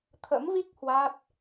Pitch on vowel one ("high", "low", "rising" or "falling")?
rising